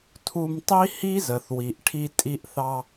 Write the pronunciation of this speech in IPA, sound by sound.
tʰ u˧ m tˤ i˦ h i˦ z ə˨ θ w i˨ ʔ ʈʰ i˧ tʼ i˧ ʔ θ ɑ˧

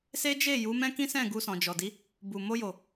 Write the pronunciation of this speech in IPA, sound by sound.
s e˦ d͡ʒ e˦˨ j u˨˦ m ɛ̃˦ k ĩ˦ s ɛ̃˦˨ ɡ u˧ s ɔ̃˨ d͡ʒ ɔ˨ d i˨˦ | b u˨ m o˧ j o˨

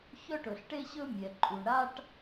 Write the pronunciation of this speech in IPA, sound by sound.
ç œ˥ ʈ ɵ˩ ɬ ʈ e˥ ɕ ɵ˥ mʲ ɛ˩ ǃʼ u˩ ɳ ɾ a˥ ʈ

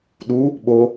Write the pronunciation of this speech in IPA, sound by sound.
ɗ u | ɓ o

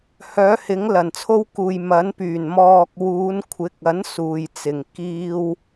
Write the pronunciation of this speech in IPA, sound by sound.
h œː˨˥ h ɪ˨˥ ŋ l ɐ˨˩ n t͡sʰ o˥ w k uː˨ j m ɐ˨˥ n p yː˨˩ n m ɔː˨ k̚ w uː˨˧ n kʷʰ ɪ˨˥ k̚ ɐ˨˥ n s uː˨ j t͡s ɪ˨˩ ŋ k iː˥ w

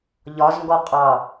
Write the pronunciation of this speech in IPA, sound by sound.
ʎ ɒ z ŋ ɡ ɔ qʼ ɑ

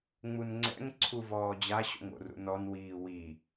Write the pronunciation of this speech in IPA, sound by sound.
ŋ͡m u n ŋ͡ǀ ɛ̰ ŋ ǀʰ u v ɔː d͡ʑ a ɕ o̰ ŋ o̰ r ṵ n ɔ n w iː w i

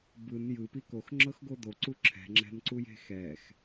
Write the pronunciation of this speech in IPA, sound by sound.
b ɯ n j ɯ p i k o x ŋ͡ǁ ɤ x ɡ o d o ǀ u ǁʰ ɛ̤ ŋ͡ǁ ɛ̤ n ǀ u j e̤ x ɛ x

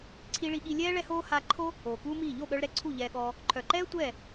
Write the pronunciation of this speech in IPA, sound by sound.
ǀʰ i˧ ɭ i˧ ɠ i˧ lʲ ɛː˦ ɭ ɛ˦ h oː˦ h a˧ ǃʰ o˦ | oː˨ k uː˦ m iː˦˨ ʎ o˦˨ ɠ œ˧ ɭ ɾ ɛ˧ ǀʰ u˦˨ ʎ ɛː˧ ɠ ɔː˧ | ǃʰ œ˨ ǃ ɛː˦ tʷ ɛː˦˨

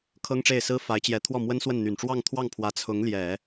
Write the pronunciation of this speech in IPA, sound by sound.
kʰ ɤ˥ ŋ ʈ͡ʂ e˥˩ ɪ̯ s ɹ̩˥ f a˧˥ ɪ̯ t͡ɕ j ɛ˧˥ t̪ʰ w ɔ˥˩ m w ə˥ n s w ə˥˩ n n̪ y˨˩ n ʈ͡ʂ w ɑ˥˧ ŋ t̪ʰ w ɑ˥˩ ŋ pʰ w ä˧˥ t͡sʰ ʊ˧˥ ŋ l j ɛ˨˩˦

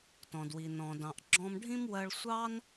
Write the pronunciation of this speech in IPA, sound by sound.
t ɔ̃˩ d w i˩ n ɔ̃˩ d ɑ̃˩ ʔ ɡ͡ǁ ɔ̃˧ m ɖʱ ĩ˥ m w ɜ˧ ɭ sʷ ɑ˥ n

